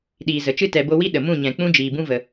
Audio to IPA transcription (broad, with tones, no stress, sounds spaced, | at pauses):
ɗ iː˨ z ə˨ t͡ʃ ɨ˦ t ɛ˨ b o˧ w i˦ ɗ ə˨ m ũ˦˨ ɲ ɛ̃˨ k͡p ũ˦ d͡ʒ iː˨ b ũ˦ v ə˨